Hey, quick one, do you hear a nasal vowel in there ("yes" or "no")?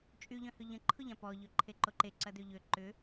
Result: yes